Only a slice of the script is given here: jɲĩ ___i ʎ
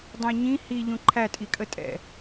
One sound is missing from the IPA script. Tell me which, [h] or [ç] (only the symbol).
h